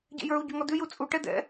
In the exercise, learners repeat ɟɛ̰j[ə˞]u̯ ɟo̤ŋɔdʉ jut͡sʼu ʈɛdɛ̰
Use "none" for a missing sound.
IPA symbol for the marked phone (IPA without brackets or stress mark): ə˞